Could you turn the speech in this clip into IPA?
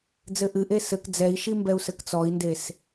d͡z ɘ ʔ ɨ ʔ e s ɘ k d͡z ɛ i̯ ʃ i m b ɛ u̯ s ɘ k t͡s ɔ i̯ n d e s

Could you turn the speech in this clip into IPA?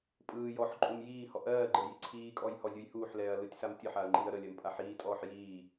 pʼ ɯː j ɔ ħ ǃʼ u m j iː h ɔ ʔ ɜː ɡ͡ǃ ə j i ǀʰ iː kʼ ɔ j h ɔ zʲ u j h uː ħ l ɛː ɐ̯ l ɯ tʲ s a m tʲ ə ħ a ɐ̯ ŋ͡ǃ iː ɐ̯ ɾ ə lʲ ɜ m pʼ a ħ iː tʼ ɔː ħ j iː

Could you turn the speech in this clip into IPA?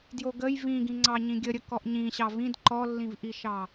d j o ɡ ə j v ĩ ɡ ĩ ŋ͡ǀ ɑ ɲ ĩ ɡʲ ə ɾʲ ə k ɔ ʔ ɲ ĩ ɕ ɑ v ĩ d ǃ ɔ lː ĩ v ʔ i ʃ ɑ

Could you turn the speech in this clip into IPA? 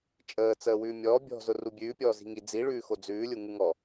t͡ʃʼ əː t͡s əː w ʉː mʲ ɔː bʲ ɔ̤ z ʊ r u bʲ ʉː pʲ ɔː z i̤ ŋ i d͡z i ɭ ʉː x o d͡z ʉː lʲ u ŋ u ŋ ɔ

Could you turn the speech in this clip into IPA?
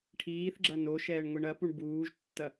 ʈʰ iː θ ɡ͡ǁ ɐ n o ʃ ɛː ɳ ŋʷ i ɳ ɐ p u ɳ b uː ʒ tː ɐ

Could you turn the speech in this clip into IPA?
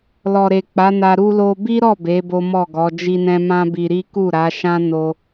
l ɔ˨ ɾ e˨ k͡p a˨˦ n a˧ ɾ u˦ l o˧ b i˦ ɾ ɔ˦˨ b e˨˦ b o˦ m ɔ˦˨ ɡ ɔ˨˦ d͡ʒ i˧ n ɛ̃˧ m ã˦ b i˧ ɾ i˦ k u˦˨ ɾ a˨˦ ʃ ã˦ n o˧

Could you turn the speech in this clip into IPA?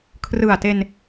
kʰ r ɯ˨˩ a̯ t e˧ n

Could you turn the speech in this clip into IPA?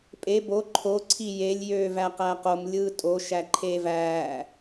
pʼ e b o ǃʰ o ǀʰ i j e lʲ j øː v æ q æ q o m lʲ ɯː tʼ o ʃ æ ǃʰ eː v æː

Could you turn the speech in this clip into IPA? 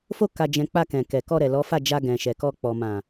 f o˧ k a˨ d͡ʒ ɛ̃˨ k͡p a˧ k ɛ̃˨ k ɛ˨ k ɔ˧ ɾ ɛ˨ l ɔ˨˦ f a˦˨ d͡ʒ a˧ ɡ ɛ̃˨ ʃ ɛ˨ k ɔ˧ k͡p ɔ˨ m ã˨

